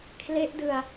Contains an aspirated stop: yes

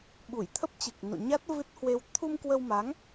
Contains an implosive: yes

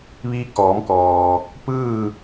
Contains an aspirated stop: no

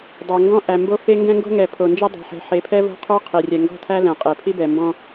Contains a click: no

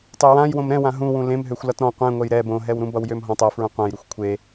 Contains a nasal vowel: yes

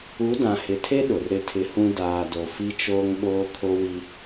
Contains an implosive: yes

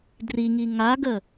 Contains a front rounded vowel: no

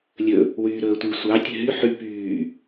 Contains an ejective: no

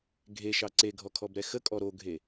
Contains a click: yes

